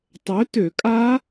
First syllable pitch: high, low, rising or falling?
rising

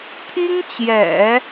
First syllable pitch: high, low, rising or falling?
high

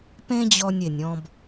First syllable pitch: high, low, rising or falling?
high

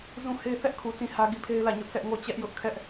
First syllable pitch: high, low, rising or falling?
falling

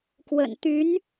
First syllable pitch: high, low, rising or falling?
low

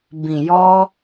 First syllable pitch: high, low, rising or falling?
low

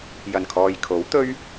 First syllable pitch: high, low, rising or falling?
low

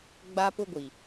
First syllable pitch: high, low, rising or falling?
high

